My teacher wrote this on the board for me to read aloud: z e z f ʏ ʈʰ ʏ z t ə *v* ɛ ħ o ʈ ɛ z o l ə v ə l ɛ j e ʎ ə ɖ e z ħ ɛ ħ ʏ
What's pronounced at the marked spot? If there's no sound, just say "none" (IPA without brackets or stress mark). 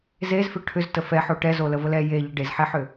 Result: f